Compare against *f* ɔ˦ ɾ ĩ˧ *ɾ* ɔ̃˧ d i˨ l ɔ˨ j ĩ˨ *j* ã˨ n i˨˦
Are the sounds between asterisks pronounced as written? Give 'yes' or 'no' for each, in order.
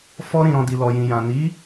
yes, yes, yes

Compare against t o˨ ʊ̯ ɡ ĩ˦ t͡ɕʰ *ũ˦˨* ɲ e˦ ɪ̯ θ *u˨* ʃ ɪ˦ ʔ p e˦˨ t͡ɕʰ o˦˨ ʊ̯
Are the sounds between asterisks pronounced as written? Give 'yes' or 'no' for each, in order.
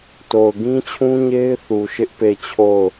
no, yes

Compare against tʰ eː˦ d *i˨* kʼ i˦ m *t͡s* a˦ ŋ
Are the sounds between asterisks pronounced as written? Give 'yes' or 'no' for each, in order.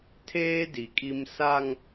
yes, no

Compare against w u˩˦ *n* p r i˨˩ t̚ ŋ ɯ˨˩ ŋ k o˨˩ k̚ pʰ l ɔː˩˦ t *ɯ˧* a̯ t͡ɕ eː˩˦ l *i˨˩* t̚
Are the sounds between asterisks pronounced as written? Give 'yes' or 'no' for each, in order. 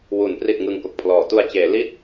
yes, no, no

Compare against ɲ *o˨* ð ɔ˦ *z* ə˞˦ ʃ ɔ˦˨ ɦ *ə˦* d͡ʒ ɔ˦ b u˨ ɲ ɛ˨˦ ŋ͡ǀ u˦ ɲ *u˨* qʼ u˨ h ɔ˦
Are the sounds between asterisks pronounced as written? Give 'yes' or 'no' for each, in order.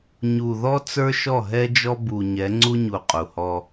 no, no, no, yes

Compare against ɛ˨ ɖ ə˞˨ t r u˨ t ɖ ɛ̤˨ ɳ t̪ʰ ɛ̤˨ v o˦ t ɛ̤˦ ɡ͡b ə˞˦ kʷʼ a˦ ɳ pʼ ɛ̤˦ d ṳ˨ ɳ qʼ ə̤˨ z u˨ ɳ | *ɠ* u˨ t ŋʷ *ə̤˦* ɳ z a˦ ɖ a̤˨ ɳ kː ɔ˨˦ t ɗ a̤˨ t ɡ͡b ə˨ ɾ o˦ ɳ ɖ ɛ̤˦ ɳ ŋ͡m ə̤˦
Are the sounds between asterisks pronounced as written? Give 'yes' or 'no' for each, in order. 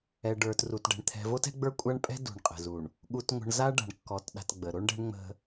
yes, no

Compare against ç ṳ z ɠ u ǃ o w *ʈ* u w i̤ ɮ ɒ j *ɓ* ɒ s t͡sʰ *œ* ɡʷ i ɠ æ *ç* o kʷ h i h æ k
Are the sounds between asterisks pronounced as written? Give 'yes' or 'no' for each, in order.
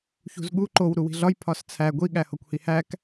no, no, no, no

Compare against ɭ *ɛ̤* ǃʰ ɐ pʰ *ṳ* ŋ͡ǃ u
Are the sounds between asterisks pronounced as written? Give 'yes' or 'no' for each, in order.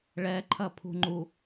no, yes

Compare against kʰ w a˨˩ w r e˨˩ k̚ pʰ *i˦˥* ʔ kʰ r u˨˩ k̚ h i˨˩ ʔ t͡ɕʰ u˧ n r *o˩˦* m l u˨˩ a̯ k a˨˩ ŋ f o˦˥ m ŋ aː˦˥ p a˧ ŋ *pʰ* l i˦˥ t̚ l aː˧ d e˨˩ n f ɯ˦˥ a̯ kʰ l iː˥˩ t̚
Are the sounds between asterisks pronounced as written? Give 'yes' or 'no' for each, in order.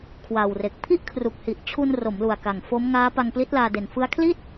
no, yes, no

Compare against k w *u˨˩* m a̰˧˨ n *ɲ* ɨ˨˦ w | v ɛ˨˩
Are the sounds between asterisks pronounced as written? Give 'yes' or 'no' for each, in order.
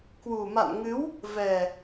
yes, no

